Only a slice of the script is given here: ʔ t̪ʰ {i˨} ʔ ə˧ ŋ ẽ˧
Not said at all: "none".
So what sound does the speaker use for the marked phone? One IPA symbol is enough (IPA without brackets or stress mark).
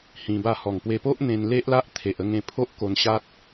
e˨